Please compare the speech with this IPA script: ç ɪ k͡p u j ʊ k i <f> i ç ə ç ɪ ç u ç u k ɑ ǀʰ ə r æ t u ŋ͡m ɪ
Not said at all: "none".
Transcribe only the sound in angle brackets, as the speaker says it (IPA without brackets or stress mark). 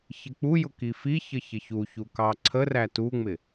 f